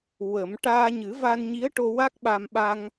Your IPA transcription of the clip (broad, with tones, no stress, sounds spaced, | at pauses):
w ə˨˩˦ m ʈ aː˧ ɲ ɨ˨˩˦ v a˧ n ɲ i˧˥ ə̯ ʈ o˧ w a˦˥ k̚ ɓ a˧ m ɓ a˧ ŋ